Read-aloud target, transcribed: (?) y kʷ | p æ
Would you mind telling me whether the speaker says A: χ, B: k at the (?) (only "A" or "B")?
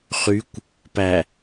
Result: A